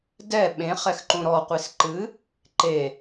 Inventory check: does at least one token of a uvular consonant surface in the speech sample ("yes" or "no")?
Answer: yes